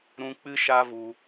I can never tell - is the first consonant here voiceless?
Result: no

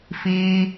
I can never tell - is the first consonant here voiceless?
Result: yes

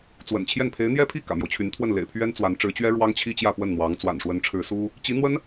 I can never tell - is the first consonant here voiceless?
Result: yes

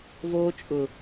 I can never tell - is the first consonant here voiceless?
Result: no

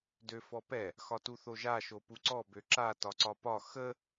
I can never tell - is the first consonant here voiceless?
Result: no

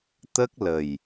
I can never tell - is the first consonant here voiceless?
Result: yes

